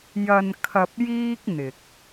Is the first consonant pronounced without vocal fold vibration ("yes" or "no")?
no